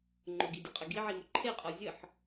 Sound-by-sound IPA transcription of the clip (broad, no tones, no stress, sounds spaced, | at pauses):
ŋ͡ǃ ʊ ɡ i dʲ ə qʼ ə ɡ i ʕ i m ʊ ǃʰ e qʼ ɔ zʲ ə ħ